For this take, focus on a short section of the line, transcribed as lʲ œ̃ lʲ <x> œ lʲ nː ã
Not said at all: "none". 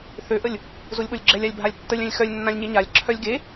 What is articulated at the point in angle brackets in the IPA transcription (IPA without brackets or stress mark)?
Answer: x